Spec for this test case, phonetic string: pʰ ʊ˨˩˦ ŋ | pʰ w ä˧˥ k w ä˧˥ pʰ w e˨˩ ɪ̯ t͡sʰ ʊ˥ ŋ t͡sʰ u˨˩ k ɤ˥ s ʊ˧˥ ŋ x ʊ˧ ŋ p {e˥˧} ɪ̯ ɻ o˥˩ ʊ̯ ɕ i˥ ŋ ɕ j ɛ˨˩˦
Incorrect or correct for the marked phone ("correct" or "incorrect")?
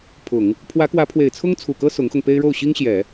incorrect